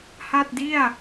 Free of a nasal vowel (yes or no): yes